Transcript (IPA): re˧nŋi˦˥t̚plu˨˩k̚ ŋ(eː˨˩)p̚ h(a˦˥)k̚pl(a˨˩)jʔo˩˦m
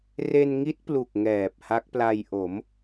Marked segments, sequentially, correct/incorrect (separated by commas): incorrect, correct, incorrect